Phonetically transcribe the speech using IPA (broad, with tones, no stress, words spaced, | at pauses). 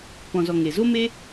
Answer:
pɔ̃˨zɔ˨ ŋe˨ zo˦me˦